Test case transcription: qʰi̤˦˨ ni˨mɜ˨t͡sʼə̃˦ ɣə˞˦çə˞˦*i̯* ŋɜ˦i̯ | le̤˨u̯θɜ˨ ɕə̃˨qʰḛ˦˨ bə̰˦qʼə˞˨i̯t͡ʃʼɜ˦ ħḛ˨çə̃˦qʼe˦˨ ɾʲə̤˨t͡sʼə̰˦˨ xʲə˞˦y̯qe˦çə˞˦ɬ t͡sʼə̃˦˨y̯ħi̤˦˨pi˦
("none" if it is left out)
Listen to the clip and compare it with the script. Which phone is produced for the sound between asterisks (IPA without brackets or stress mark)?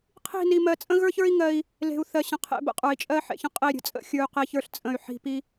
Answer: i̯